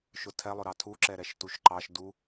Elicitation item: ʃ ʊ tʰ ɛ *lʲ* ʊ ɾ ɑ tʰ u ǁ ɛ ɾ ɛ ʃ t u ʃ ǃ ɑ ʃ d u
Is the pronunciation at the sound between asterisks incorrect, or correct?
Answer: incorrect